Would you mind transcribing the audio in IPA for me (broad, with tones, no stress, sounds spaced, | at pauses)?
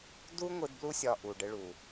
d u˦ ŋʷ ɯ˧ d b l u˦ sʲ ɒ˧ ʔ u˨ ɖ ɘ˧ ɭ u˨